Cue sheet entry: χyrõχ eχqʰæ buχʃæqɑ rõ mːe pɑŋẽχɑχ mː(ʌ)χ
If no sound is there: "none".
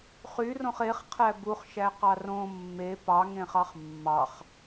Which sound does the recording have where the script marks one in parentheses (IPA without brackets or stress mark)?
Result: ɑ